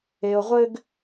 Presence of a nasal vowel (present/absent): absent